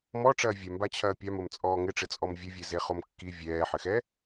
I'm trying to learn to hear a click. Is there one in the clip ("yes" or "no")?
no